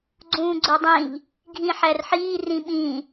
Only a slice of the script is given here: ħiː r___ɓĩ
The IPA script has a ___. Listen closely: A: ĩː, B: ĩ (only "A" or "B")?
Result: B